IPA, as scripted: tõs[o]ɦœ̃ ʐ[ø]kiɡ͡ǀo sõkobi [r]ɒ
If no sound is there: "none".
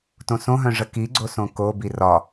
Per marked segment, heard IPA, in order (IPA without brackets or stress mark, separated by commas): õ, ə, r